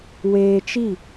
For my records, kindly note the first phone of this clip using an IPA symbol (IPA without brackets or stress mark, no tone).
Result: w